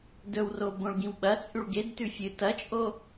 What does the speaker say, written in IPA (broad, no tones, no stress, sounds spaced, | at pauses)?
d ɵ w r o b õ ɭ ɡ ĩ w ɓ ɐ t͡sʼ ʉ ɭ ɡ e d t ʉ fʲ ɨ t ɐ t͡ʃʼ o